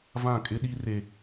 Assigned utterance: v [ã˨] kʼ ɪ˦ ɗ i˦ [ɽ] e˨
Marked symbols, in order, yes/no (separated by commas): no, no